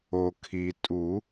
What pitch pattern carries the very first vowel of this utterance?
low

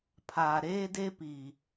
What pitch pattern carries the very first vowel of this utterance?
low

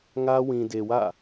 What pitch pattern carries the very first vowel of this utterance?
high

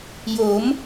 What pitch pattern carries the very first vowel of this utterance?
rising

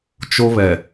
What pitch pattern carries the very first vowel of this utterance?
high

